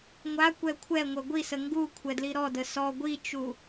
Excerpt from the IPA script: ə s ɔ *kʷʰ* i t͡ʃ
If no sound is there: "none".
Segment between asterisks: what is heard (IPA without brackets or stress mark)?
ɡʷ